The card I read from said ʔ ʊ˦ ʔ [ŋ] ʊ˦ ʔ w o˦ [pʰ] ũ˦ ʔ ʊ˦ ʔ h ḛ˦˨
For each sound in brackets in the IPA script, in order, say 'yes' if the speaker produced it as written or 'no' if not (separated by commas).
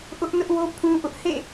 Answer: no, yes